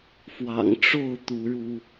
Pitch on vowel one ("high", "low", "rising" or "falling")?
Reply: low